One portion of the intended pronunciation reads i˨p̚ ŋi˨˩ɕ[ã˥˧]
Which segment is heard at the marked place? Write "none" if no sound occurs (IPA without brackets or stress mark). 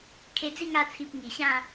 ã˥˧